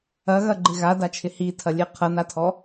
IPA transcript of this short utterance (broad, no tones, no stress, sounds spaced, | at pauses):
ɐ ɣ ɐ ɡ͡ǃ ɪ ɣ a d a t͡ʃʰ ɪ h i tʰ ɐ lʲ e qʰ ɐ n a tʰ ɔ